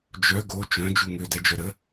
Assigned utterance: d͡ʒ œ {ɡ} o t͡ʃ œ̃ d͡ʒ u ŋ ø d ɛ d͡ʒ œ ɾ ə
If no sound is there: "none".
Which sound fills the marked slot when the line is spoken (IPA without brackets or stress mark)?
ɡ